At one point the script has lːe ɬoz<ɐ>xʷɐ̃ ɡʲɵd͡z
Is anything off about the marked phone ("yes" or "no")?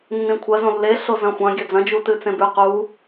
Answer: yes